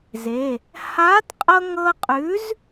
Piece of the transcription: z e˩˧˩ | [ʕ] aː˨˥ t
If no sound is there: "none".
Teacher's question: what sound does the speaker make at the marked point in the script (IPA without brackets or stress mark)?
h